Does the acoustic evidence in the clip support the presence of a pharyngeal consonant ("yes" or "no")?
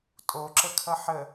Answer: yes